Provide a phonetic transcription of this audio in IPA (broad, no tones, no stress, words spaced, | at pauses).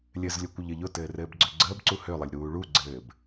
lʲɘzlʲʊkʷəʎɘ ʎʊtɘːrɘːbɡ͡ǀø ɡ͡ǀəːbǀu hølˠəlʲɾuː ɭuɡ͡ǀɘːb